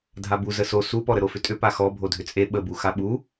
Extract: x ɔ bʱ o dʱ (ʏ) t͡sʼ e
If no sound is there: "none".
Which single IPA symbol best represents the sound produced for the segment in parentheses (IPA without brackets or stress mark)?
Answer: ʏ